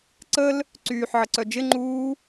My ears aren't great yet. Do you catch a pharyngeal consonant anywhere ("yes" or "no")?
yes